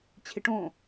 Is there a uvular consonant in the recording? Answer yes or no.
no